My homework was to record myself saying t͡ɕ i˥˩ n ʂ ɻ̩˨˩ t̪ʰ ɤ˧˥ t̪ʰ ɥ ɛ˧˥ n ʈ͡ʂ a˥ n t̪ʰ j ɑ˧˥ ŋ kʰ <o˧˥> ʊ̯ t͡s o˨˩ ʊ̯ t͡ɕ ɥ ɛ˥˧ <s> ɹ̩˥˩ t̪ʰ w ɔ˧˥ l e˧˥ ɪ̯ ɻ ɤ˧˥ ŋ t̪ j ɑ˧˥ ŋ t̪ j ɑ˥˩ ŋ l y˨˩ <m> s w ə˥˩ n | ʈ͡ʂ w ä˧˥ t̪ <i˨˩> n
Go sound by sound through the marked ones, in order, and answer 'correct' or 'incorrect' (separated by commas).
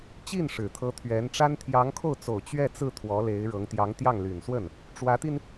incorrect, incorrect, incorrect, incorrect